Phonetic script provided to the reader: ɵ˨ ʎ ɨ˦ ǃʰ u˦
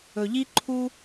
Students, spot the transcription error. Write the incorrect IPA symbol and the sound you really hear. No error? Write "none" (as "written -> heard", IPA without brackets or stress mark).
ɨ˦ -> i˦